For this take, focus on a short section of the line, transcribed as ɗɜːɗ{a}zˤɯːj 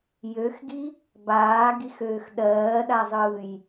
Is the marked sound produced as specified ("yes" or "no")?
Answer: yes